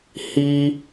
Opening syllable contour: high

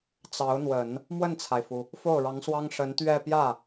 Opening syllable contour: rising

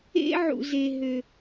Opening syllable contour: high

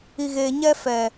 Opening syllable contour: low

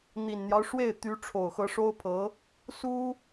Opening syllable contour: low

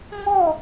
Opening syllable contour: falling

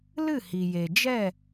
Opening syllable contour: falling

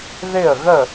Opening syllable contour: falling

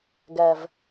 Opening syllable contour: low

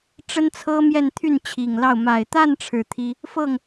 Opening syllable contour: high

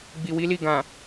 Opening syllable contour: low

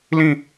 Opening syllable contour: falling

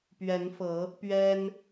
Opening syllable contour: rising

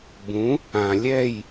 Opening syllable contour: rising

